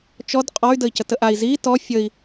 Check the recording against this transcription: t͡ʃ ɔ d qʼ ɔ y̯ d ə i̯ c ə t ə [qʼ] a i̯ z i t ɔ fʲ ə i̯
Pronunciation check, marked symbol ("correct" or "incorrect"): incorrect